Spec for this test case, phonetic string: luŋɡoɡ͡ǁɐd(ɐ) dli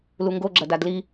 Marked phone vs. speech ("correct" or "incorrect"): incorrect